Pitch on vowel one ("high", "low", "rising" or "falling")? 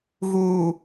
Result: low